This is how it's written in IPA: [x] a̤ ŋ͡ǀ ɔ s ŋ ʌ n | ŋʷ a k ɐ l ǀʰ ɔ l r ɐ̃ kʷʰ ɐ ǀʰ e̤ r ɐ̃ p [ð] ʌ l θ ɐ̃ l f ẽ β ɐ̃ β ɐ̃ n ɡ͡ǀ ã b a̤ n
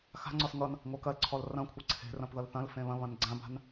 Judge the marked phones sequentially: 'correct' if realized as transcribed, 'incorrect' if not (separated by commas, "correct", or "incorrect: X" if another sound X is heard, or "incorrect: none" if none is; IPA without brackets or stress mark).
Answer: correct, correct